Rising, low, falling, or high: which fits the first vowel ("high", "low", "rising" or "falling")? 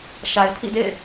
low